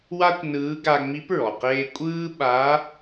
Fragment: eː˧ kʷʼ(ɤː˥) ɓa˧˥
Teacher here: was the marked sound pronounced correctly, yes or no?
no